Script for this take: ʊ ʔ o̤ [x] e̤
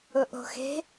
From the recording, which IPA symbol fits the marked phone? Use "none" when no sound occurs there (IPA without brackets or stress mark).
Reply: x